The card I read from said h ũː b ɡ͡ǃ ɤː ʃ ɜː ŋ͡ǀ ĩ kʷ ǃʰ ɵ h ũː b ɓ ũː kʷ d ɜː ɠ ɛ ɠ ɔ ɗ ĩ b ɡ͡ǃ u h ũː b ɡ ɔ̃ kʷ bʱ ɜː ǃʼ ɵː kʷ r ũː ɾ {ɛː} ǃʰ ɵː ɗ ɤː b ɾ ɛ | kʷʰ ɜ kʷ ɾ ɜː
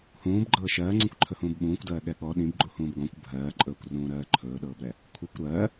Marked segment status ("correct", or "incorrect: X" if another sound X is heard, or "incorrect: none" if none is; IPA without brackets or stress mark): incorrect: ɜː